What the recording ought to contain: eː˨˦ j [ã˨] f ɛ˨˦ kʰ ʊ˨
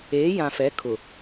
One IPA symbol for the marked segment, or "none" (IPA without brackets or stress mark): ã˨